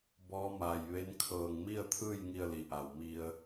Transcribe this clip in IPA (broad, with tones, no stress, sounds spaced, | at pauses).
b ɔː˧˥ m aː˧˩ j ʋ e˧˥ n kʰ ɤː˧˩ ŋ m i˥˨ ə̯ t̪ʰ ɯː˥˨ j ŋ i˥˨ ə̯ l i˧˩ ʔ a˧˩ w m i˧ ə̯